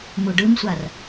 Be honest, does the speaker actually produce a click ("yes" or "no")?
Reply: no